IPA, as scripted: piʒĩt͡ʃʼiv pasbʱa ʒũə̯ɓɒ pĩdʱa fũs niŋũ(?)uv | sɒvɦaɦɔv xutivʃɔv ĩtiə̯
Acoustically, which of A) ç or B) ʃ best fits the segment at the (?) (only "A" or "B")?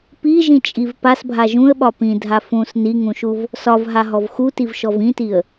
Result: B